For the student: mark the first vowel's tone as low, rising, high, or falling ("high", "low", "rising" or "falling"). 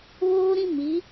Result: high